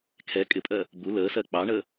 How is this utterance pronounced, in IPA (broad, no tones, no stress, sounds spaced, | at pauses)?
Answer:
kʰ ɛ kʼ ɪ pʼ ɜ | b u l əː s ɜ k͡p ɑ ɳ ə